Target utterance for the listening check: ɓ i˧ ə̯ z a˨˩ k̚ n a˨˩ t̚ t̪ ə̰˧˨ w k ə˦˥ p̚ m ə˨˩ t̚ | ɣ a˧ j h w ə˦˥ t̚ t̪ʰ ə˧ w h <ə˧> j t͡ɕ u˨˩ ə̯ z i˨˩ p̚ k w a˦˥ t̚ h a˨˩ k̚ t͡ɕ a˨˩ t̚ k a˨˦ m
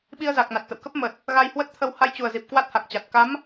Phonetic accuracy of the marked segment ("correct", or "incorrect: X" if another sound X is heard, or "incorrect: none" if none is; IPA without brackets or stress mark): incorrect: a˧